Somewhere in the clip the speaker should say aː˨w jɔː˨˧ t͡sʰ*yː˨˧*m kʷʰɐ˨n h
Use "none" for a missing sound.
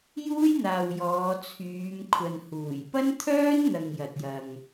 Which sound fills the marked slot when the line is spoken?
yː˨˧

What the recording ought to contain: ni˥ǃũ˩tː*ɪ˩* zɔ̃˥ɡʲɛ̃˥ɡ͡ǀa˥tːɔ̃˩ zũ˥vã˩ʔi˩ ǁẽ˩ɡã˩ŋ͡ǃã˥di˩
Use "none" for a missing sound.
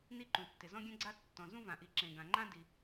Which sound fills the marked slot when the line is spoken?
ɪ˩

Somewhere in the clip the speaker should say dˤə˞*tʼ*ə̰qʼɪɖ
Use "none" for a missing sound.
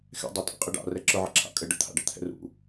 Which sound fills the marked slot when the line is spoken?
tʼ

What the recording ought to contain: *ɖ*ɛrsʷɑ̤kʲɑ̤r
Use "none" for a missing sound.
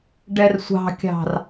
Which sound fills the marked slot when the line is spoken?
ɖ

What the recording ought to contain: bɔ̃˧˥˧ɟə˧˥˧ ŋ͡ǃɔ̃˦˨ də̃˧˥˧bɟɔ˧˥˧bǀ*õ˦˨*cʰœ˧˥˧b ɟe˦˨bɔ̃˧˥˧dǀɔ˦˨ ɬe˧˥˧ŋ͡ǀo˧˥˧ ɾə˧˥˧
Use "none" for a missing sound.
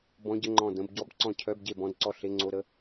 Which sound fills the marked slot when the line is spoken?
ɔ̃˦˨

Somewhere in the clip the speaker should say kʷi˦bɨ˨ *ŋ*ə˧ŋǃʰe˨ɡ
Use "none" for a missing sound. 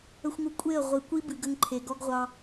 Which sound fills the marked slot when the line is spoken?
ɡ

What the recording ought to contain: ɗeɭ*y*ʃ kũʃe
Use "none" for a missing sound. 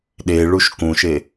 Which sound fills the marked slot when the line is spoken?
u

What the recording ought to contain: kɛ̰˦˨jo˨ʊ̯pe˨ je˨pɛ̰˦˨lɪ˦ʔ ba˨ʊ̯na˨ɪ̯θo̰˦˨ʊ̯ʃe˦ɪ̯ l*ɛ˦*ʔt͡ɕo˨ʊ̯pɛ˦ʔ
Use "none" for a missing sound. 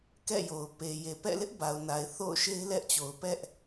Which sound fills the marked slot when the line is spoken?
ɛ˦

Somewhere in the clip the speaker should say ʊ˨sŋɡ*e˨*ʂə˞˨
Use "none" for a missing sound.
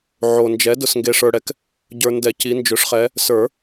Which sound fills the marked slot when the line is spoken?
e˨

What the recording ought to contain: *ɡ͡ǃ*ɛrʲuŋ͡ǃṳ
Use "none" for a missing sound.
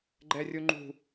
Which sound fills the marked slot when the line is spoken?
ɡ͡ǃ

